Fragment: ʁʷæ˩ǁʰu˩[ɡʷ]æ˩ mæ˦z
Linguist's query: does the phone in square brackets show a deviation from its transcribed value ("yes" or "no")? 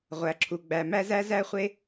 yes